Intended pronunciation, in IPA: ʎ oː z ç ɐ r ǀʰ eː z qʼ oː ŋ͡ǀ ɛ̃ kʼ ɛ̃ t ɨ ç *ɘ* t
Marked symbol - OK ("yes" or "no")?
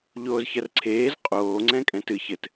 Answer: yes